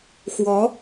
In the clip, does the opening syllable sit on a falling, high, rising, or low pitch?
rising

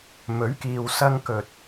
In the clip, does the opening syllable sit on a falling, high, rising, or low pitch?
rising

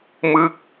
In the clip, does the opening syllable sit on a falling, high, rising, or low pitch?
falling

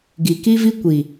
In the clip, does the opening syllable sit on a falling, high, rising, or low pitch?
low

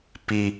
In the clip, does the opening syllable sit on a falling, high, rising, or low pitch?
high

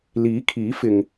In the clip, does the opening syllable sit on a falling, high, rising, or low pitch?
rising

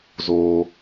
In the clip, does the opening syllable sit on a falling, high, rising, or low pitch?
high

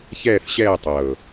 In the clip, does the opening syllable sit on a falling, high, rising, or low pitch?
falling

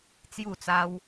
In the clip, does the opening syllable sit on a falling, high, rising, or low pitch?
falling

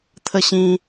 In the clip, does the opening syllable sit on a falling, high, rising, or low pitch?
falling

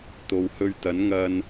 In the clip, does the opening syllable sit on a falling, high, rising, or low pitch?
low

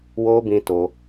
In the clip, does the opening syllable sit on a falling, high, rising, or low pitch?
high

